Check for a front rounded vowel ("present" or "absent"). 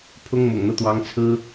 absent